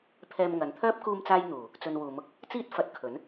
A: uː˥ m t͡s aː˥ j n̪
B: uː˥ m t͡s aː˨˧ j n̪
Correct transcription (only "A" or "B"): A